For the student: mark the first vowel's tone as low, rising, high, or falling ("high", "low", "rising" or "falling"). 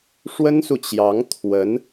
high